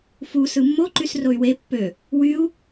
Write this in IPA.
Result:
fu sɯmːo ǃysroy̯we pːø | wyu̯

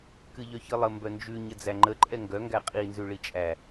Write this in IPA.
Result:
kɨʎœçɨlˠə mbœnd͡ʒʉ ɲəd͡zæŋ͡ǃə ǃʼɛŋɡœ ŋɡæqʼi nzʉɭit͡ʃʼæ

